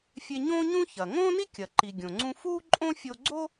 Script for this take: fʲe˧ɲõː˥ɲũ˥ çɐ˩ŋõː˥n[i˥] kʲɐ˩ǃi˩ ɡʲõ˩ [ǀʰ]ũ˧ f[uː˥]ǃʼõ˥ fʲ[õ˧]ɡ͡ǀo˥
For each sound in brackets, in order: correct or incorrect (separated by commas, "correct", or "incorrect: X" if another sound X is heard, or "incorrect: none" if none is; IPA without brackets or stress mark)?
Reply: correct, incorrect: ŋ͡ǀ, correct, incorrect: o˧